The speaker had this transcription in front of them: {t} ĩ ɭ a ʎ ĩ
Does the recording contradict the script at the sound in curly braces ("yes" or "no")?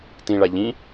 no